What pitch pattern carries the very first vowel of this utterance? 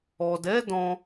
low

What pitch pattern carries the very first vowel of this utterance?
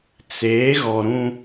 rising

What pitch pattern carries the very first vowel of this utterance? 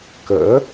rising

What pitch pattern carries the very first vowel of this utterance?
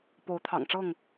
rising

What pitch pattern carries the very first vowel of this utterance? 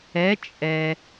rising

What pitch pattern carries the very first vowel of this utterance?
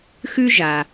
high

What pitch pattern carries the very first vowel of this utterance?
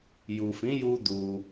low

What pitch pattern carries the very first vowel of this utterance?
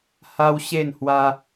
high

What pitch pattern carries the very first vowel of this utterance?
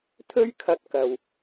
high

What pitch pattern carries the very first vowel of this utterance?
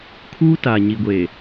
high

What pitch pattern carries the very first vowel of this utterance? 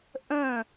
falling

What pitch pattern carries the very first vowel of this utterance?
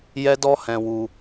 high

